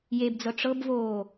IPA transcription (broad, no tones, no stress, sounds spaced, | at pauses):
j e b d͡z ɤ ʈ͡ʂ ɤ b v oː